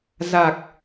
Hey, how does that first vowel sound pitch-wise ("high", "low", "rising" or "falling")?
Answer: low